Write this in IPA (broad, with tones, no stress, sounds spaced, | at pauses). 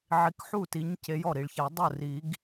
ʕ i˨˦ k ħ u˥˩ t i˨˦ ɲ c e˨˦ j ɔ˥˩ ɾ i˨ ɭ ç a˨˩˦ dˤ ʊ˥˩ r i˨˩˦ ɡ